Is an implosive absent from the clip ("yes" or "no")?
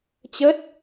yes